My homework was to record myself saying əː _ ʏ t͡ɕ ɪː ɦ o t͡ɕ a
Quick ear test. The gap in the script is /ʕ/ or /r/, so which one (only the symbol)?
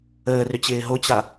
r